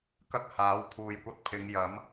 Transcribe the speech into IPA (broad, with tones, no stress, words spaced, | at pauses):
kɐ˥k̚haː˨˥wpʰuː˨jkʷɐ˧t̚ pʰɪ˨˧ŋjɐ˨˥m